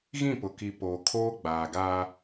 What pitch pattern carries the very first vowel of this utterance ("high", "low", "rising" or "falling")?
falling